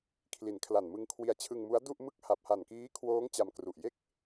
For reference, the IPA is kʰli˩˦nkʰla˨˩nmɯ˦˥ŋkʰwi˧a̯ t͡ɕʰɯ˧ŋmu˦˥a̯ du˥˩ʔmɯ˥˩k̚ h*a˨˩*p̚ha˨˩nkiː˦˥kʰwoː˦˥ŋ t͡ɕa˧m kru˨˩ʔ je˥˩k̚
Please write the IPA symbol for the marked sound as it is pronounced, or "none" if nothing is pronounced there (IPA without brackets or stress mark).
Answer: a˨˩